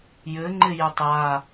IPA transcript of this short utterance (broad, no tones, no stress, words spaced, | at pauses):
jɘŋ͡ǃɪ jɘtˤja